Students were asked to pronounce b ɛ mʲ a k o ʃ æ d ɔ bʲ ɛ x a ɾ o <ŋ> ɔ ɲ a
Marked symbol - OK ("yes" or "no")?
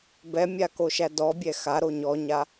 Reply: no